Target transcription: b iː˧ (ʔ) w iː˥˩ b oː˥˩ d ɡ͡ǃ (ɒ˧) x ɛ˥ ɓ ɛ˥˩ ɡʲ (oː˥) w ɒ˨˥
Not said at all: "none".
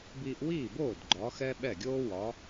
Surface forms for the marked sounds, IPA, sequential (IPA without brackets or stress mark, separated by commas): ʔ, ɒ˨˥, oː˥